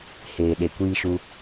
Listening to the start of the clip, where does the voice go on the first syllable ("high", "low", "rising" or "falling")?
low